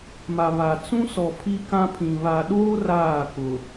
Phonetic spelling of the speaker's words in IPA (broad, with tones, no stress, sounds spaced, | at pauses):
m a˨ β a˨ t͡s ũ˦ s ɔ˨ pʰ i˦ k ã˦ pʰ ĩ˨ β a˨ ɗ oː˦ r aː˦˨ k ʊ˨